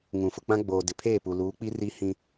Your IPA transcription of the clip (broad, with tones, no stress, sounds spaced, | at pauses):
ŋ ũ˨ f ʊ˨ k͡p ã˦ ɡ͡b oː˨ d ɪ˨ pʰ eː˦˨ p u˨ l uː˨˦ k͡p i˦ r i˦ h ĩ˦